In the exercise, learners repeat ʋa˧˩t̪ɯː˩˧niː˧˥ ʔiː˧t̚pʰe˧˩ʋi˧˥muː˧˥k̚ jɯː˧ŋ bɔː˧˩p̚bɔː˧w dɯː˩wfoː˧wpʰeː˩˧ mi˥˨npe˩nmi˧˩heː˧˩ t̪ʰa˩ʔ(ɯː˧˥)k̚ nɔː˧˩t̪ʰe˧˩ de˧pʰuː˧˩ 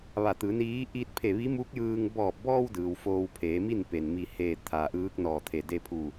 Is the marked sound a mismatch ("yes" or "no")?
no